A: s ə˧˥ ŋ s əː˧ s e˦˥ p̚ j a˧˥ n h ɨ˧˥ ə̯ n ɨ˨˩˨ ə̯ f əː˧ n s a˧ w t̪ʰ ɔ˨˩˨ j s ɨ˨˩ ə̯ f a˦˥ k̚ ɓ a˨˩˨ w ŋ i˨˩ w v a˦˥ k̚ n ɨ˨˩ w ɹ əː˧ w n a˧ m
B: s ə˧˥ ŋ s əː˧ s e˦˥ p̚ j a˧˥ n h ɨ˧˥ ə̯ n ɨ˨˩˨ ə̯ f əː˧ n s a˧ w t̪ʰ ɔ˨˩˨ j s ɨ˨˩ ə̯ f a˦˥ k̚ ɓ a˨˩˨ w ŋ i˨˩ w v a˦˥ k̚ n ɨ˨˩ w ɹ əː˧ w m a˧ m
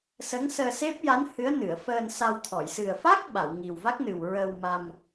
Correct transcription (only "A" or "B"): B